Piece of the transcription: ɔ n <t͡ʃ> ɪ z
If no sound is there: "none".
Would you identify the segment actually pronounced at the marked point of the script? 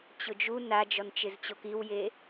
t͡ʃ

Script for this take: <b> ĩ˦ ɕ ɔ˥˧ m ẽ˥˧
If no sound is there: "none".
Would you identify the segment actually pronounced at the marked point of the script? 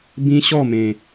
b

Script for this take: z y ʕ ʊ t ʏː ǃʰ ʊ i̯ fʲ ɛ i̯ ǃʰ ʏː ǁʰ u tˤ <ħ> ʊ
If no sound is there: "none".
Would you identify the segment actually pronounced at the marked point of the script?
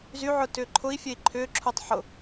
ħ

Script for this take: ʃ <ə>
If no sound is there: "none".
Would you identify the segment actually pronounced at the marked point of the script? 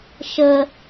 ə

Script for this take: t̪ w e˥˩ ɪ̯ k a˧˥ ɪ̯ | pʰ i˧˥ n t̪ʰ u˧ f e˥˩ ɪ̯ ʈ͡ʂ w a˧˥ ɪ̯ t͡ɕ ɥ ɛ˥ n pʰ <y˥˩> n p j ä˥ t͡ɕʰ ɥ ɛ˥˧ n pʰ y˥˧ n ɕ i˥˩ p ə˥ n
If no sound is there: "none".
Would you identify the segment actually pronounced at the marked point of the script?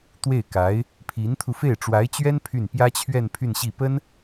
y˥˩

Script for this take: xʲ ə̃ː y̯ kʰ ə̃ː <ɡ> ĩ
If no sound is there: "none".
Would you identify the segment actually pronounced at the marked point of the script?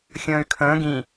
ɡ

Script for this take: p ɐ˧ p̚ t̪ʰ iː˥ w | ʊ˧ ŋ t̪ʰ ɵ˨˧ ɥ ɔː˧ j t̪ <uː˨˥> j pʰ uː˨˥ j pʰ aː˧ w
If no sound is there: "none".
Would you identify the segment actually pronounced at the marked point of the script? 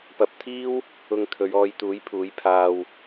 uː˨˥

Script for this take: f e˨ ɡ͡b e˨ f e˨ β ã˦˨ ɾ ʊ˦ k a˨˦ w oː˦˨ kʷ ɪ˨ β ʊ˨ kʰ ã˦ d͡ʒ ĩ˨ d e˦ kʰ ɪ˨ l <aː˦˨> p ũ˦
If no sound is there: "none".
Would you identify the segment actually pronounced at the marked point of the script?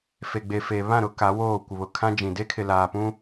aː˨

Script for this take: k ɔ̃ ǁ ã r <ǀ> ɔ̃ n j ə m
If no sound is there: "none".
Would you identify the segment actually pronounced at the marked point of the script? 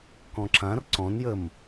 ǀ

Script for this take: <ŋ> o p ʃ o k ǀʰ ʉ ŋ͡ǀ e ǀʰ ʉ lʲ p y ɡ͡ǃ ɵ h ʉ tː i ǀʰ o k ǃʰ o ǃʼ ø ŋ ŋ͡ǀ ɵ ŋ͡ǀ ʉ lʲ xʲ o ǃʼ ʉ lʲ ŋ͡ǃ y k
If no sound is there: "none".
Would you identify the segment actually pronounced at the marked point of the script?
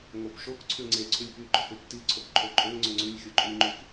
ŋ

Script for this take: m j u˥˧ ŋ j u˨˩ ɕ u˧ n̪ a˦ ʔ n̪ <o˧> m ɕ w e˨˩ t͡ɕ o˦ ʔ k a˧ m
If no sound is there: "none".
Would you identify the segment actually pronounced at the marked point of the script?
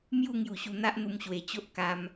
u˧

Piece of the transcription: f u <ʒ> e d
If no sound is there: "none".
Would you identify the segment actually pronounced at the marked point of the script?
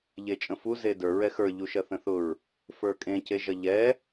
z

